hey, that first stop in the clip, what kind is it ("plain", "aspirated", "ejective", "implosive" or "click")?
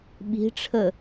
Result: implosive